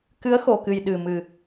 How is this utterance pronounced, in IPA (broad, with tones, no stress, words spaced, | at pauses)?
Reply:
kɨ˨˦ə̯xo˨˩kɨ˨˩j ɗɨ˨˩mɨ˨˩